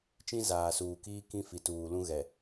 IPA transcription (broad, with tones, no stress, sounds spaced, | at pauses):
t͡ʃ ĩ˦ z aː˨ s uː˨ k iː˦ k ĩ˦ f i˨ t uː˨ l ũ˦ ɣ ɛ˨